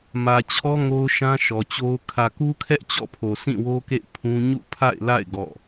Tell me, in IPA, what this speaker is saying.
m ä˨ t͡ɕʰ ɔ˦ ŋ o˦ ʊ̯ ʃ ã˦ ʃ ɔ˨ t͡ɕ o˦ ʊ̯ kʰ ä˨ k u˦ kʰ ɛ˦ ʔ t͡ɕ ɔ̰˦˨ pʰ o˨ s ĩ˦˨ w o˦ k ḛ˦˨ ɪ̯ pʰ ũ˦ ɲ ṵ˦˨ pʰ a̰˦˨ ɪ̯ l a̰˦˨ ɪ̯ ɡ ɔ̰˦˨

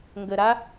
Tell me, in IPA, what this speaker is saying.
ŋ ɡ ə ɾ a

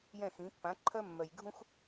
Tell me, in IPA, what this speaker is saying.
j ɛ̃˥˩ x ĩ˩˥ pː ã˩˥ ǃʰ œ˧ mː œ˩ j ɡʱ ũ˧ x

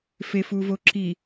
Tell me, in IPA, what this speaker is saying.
f e f u v o ǁ i

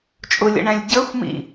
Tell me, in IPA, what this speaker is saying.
t͡ʃʼ ʊ lʲ ə̰ ɳ æ̃ lʲ ɟ ə˞ xʷ m ḭ

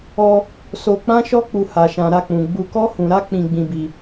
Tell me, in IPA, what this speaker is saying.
ɔ˧ | s o˧ k͡p ã˦ ʃ ɔ˦ k͡p u˧ h a˨ ʃ ã˨ ɾ a˧ k͡p ũ˨ ɡ͡b u˧ k ɔ˦ h ũ˧ ɾ a˦ k͡p ĩ˧ ɡ͡b ĩ˧ b i˧

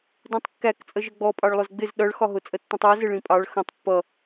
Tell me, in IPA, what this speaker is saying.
d ũ tˤ kː æ k t͡sʼ ə ʒ ə ɡ͡b ɔ pʼ ɑ ɭ lˠ ʊ z ɡ͡b ɪ z ɗ ʌ ɭ x ɒ ɦ ʊ t͡sʼ ə tː ũ tˤ ɜ z ɪ ɭ ĩ pʼ ɑ ɭ x ə̃ tˤ pː ʌ

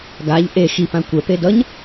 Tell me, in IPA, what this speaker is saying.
ɡ a ʎ ʔ e x i p ã kʷ ɛ p e d ʌ ɲ

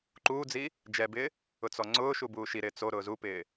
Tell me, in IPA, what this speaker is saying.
ǃ uː d͡z i | d͡ʒ ɛ b ɪː | ʊ t͡s ɔ ŋ͡ǀ ʊː ʃ u b uː ʃ i ɾ ɪː t͡s o ɾ ʊː z u p ɪː

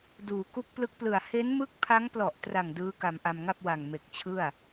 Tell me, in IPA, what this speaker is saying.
d uː˩˦ k u˦˥ k̚ p l ɯ˦˥ k̚ p l ɯ˨˩ a̯ h e˦˥ n m ɯ˦˥ k̚ pʰ a˦˥ ŋ p l ɔ˨˩ ʔ t r a˨˩ ŋ d ɯː˦˥ k a˧ m ʔ a˧ m ŋ a˥˩ p̚ w a˨˩ ŋ m e˨˩ k̚ t͡ɕʰ ɯ˥˩ a̯

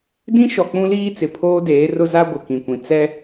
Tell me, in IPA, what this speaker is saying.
d ĩ˦ ʃ ɔ˨ k͡p ũ˦ l iː˦ t͡s ɪ˨ pʰ oː˦ d eː˨˦ r ʊ˦ z a˦ ɡʷ ɪ˨ k ĩ˨ kʷ ĩ˨ t͡s ɛ˦

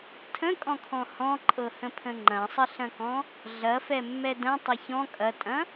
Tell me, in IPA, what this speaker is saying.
tʰ ə̃ kʼ ɔ̃ kʰ ɔ̃ h ɔ̃ ǃʼ ɤ h ə̃ pʰ ə̃ ŋ͡ǃ ɐ̃ sˤ ə ɬ ɐ̃ k ɔ̃ | ɮ ɐ f ɛ mː ɛ d ɐ̃ tˤ ɐ ç ɔ̃ kʼ ɐ tʼ ɐ̃

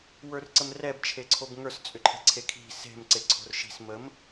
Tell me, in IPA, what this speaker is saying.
w ə˞ r ǀ ə m r ɛ b t͡ʃʰ e ǀʰ o b ŋ ə˞ s t͡sʼ ʏ ǃʰ ɛ̤ ǀʰ e kʰ i̤ s e̤ m ǀ e ǀʰ o̤ r ʃ i̤ s m ə m

